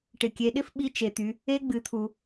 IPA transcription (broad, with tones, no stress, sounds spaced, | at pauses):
ʈ ɪ˩ kʲ e˩˧ ɗ ɪ˧˥ f ɓ i˧˥ t͡ʃ e˩ t̪ y˩˧ | e˧ ɡ͡b ɨ˩˧ t̪ʰ u˩